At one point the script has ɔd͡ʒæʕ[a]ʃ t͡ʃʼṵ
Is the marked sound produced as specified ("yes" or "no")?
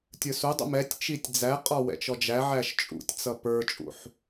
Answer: no